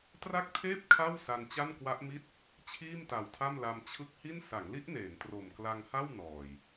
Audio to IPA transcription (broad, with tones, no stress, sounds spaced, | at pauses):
t r a˥˩ k̚ tʰ eː˥˩ p̚ kʰ a˥˩ w s a˧ n t͡ɕ a˥˩ n k w a˦˥ ʔ m i˥˩ t̚ | t͡ɕʰ iː˥˩ m t a˨˩ w tʰ a˥˩ m l a˧ m t͡ɕʰ ɯ˦˥ k̚ h i˥˩ n s a˩˦ ŋ l i˦˥ ʔ n eː˩˦ n t r o˨˩ m k l a˧ ŋ h a˥˩ w n ɔː˨˩ j